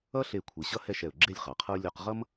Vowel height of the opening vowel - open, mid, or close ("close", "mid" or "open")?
mid